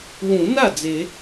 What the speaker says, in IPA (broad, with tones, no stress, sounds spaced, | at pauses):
w ũ˨˩˦ n a˥˩ d͡z e˨˩˦